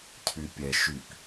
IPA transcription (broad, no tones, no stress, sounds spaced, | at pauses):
cʰ y pʲ ɛ ʃ y k